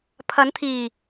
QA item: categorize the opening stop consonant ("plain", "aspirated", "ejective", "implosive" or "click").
aspirated